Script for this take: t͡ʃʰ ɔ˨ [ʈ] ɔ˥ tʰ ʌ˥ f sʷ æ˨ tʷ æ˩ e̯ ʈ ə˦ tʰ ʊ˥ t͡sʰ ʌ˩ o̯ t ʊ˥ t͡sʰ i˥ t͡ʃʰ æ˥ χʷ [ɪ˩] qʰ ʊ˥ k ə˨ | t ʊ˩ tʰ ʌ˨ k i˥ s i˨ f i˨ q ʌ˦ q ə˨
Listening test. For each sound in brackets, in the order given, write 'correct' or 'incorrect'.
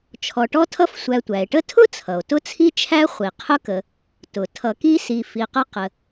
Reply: correct, incorrect: i˩

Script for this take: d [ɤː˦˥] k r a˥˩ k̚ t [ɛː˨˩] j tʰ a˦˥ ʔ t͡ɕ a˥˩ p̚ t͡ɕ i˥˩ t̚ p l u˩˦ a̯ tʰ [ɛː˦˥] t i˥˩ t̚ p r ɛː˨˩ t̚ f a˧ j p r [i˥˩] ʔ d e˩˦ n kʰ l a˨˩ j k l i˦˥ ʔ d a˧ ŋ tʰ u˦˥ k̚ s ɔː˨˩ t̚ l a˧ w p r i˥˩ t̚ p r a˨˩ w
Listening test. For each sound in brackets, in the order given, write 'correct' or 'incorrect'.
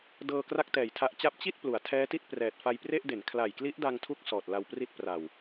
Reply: incorrect: ɤː˧, correct, correct, incorrect: e˥˩

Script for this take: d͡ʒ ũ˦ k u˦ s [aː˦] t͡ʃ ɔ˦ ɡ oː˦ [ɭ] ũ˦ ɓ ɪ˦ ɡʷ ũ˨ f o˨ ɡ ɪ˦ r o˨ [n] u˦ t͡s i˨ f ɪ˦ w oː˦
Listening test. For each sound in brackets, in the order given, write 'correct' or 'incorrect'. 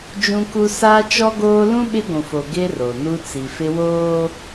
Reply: correct, incorrect: l, correct

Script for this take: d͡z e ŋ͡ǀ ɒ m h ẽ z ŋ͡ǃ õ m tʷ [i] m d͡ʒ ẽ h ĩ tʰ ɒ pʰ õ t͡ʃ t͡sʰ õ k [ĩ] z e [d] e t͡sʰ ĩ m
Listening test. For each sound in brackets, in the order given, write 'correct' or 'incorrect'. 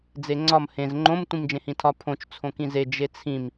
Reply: incorrect: ĩ, correct, incorrect: d͡ʒ

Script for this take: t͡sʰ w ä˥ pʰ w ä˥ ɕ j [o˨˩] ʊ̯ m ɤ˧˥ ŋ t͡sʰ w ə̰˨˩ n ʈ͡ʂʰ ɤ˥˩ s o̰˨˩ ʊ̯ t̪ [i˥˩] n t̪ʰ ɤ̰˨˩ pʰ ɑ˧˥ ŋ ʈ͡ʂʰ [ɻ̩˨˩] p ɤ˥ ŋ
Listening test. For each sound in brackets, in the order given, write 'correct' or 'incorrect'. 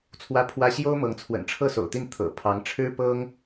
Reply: incorrect: o˥, correct, incorrect: ɻ̩˥

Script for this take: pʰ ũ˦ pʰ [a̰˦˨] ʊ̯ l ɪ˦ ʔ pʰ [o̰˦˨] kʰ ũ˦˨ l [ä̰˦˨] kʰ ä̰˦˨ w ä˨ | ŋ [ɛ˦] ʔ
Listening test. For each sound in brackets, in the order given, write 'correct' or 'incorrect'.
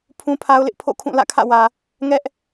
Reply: incorrect: a˦, correct, correct, correct

